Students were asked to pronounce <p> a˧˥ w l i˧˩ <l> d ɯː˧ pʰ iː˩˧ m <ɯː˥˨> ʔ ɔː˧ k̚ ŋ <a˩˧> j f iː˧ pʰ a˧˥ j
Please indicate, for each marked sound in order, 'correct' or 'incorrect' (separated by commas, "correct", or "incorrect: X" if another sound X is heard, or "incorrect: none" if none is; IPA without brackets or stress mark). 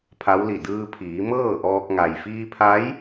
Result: incorrect: pʰ, incorrect: none, incorrect: ɤː˥˨, incorrect: a˩